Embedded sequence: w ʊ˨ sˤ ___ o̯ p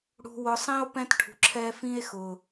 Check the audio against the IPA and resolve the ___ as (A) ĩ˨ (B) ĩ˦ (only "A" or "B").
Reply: B